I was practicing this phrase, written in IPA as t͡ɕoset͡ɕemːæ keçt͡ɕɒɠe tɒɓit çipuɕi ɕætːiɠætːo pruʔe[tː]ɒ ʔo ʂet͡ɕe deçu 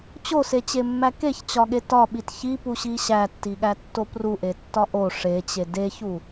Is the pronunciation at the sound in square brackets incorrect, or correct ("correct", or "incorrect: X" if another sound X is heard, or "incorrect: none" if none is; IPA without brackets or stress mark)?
correct